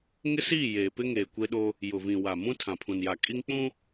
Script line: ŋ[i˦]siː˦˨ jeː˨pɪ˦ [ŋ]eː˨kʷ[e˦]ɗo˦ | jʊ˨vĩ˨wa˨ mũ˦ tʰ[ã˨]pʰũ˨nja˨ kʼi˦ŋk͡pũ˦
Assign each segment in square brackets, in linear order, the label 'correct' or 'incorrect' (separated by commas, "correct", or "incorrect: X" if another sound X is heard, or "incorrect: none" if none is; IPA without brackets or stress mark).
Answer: incorrect: ɪ˦, correct, correct, correct